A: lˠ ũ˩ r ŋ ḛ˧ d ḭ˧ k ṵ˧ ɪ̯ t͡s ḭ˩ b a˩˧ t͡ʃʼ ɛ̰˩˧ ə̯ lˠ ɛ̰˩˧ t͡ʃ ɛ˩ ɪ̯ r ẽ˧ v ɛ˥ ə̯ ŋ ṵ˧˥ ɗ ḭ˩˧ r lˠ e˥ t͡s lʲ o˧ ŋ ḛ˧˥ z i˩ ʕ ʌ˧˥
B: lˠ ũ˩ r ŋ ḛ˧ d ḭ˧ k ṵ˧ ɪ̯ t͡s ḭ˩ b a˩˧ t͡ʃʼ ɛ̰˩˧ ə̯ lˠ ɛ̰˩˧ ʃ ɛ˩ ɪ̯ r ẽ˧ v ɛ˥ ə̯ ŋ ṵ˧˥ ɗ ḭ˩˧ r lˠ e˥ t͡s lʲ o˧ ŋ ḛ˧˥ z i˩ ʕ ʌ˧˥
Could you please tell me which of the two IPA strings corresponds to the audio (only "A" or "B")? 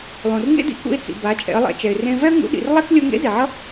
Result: A